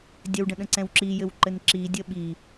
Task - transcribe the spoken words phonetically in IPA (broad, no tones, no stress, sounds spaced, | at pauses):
dʲ ɘ w ɖ ə̃ ɗ ə̃ ǀ ɛ̃ w ǁ i j ɘ w ǃ ɘ n ǁ i dʲ ə ɓ i